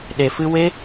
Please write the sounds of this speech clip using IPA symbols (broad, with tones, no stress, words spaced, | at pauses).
ɗe˨fɨ˧ we˦